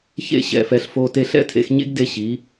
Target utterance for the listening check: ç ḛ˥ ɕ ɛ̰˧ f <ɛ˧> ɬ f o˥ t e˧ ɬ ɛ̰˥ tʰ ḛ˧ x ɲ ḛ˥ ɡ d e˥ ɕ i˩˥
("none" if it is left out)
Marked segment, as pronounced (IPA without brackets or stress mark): ɛ˧